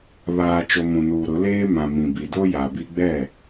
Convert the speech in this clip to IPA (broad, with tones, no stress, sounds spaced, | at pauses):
β aː˨ t͡ʃ o˨ m ũ˨ n uː˨ ɾ ʊ˨˦ l eː˦ m ã˨ m ĩ˨ b i˨ d o˦ j a˨ b i˦ ɡ͡b ɛ˦˨